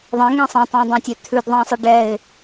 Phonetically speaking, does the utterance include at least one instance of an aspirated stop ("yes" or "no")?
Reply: yes